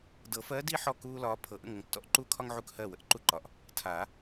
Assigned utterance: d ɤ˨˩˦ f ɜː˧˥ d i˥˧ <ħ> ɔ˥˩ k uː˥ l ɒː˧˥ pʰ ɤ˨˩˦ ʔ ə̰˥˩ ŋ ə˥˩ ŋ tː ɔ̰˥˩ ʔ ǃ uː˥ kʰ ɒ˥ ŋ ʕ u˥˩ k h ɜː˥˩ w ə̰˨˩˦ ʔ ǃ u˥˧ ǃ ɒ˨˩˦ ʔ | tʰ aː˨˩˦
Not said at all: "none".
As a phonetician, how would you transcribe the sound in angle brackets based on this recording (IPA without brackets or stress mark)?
ħ